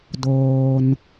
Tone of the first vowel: low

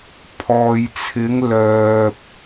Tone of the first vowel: low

